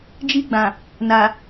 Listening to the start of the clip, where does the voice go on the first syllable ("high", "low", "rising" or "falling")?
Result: high